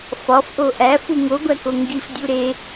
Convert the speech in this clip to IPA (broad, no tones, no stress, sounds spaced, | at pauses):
f ɒ f ʔ o ʔ æ f u ŋ o ɡʷ æ k o ŋ ɡ i f dʲ u ɾ e